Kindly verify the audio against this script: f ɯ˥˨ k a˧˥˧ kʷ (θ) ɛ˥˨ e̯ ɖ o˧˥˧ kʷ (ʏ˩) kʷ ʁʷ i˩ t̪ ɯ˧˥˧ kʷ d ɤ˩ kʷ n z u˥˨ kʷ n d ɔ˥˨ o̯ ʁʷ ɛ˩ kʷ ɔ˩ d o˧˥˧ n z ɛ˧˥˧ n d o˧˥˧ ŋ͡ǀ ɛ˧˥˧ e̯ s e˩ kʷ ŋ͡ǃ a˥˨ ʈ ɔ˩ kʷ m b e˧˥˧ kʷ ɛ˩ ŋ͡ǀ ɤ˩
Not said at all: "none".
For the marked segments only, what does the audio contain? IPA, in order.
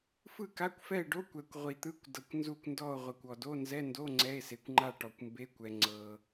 f, ɛ˩

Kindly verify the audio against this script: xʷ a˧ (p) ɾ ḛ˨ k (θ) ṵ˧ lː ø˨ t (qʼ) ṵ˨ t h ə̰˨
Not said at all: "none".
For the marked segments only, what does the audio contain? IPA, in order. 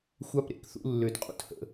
p, θ, qʼ

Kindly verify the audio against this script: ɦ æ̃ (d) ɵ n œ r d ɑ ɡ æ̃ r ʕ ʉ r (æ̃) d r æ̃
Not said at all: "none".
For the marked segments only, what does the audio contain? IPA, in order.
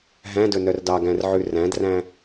d, æ̃

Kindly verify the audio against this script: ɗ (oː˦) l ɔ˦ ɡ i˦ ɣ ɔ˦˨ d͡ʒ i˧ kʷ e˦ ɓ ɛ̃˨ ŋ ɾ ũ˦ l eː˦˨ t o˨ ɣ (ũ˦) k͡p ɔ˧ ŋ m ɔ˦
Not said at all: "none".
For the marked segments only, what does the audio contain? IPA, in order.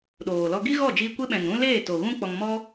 oː˨, ũ˦

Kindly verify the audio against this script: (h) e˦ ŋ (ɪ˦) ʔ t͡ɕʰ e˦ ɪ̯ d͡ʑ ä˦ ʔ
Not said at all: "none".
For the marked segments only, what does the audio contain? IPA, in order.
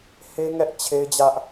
h, ɛ˦

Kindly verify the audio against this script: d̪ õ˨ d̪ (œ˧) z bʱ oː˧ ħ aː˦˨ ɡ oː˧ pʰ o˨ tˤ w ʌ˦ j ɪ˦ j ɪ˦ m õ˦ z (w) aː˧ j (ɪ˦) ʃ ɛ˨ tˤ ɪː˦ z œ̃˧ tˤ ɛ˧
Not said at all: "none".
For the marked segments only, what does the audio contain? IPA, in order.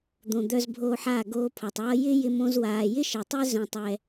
œ˧, w, ɪ˦

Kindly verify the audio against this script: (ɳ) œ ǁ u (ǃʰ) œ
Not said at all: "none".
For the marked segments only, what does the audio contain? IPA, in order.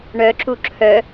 ɳ, ǁʰ

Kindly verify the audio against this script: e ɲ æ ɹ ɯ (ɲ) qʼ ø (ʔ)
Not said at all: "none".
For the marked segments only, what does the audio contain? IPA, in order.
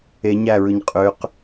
ɲ, q

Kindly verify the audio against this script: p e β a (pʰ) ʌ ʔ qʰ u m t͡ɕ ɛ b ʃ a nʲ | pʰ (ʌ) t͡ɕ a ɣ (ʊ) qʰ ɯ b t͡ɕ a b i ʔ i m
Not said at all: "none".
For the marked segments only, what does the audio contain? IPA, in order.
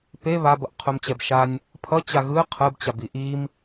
b, ʌ, ɯ

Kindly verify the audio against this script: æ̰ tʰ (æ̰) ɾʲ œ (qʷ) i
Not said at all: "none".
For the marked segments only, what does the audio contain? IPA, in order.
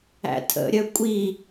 ə̰, kʷʼ

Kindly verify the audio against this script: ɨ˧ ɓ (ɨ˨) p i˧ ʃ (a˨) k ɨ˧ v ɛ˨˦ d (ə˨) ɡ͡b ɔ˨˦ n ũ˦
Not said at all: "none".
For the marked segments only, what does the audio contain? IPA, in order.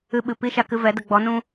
ɨ˨, a˨, ə˨

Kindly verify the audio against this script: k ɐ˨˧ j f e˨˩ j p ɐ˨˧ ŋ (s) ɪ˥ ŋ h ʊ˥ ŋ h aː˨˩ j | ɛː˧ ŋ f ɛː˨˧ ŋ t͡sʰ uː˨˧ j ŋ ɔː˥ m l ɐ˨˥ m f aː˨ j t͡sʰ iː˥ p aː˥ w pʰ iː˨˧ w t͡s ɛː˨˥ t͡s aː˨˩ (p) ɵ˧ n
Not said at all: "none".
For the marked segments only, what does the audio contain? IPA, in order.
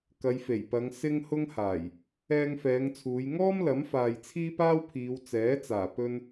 s, p

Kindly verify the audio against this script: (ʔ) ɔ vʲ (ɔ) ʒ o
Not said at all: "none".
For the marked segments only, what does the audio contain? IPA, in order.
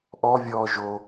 ʔ, ɔː

